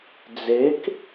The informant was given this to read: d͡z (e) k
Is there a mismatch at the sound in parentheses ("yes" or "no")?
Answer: no